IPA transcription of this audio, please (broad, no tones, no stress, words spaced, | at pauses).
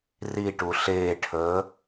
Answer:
riʈu ɬeːʈʰəː